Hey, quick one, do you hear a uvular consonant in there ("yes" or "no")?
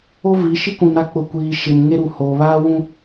no